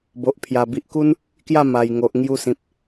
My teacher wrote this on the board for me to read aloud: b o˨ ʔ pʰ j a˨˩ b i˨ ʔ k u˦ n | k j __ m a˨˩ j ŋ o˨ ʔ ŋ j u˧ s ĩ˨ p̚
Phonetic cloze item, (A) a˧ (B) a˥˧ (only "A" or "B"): B